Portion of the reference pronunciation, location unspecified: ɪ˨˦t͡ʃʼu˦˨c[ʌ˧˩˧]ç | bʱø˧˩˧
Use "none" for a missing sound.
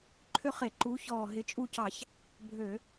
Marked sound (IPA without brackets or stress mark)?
ɑ˧˩˧